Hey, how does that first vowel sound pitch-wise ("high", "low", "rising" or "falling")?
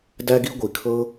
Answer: high